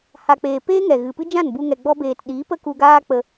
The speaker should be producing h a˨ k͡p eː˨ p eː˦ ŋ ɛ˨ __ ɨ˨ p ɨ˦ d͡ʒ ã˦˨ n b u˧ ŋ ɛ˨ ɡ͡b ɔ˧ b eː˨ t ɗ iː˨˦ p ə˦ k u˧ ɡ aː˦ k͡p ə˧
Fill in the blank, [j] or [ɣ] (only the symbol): ɣ